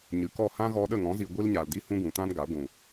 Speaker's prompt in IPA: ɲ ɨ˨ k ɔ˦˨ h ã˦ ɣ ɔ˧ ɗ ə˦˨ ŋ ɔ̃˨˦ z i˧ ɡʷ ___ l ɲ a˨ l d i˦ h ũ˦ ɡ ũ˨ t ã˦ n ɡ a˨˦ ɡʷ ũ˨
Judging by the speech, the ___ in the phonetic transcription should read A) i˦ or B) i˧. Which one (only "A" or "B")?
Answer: A